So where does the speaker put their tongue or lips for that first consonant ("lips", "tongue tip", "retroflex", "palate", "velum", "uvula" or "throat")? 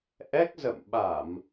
throat